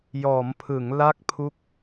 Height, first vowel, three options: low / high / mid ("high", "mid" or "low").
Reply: mid